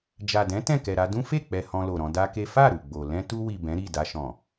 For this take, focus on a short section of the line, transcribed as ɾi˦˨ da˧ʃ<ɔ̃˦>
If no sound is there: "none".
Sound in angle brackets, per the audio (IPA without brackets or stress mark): ɔ̃˨